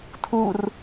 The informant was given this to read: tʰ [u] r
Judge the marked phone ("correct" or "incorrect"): correct